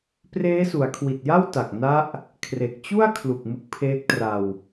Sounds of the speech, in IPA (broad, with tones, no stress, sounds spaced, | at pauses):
p r eː˦˥ s u˩˦ a̯ kʰ w i˨˩ t̚ j a˥˩ w t a˨˩ k̚ n a˦˥ ʔ | kʰ r e˨˩ k̚ t͡ɕ u˥˩ a̯ kʰ l u˨˩ k̚ m ɯ˦˥ k̚ pʰ eː˦˥ k̚ t r a˧ w